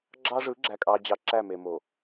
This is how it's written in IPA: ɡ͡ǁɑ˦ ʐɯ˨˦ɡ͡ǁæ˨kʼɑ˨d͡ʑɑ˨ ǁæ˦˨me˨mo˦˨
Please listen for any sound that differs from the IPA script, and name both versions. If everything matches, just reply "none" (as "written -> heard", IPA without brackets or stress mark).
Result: o˦˨ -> o˨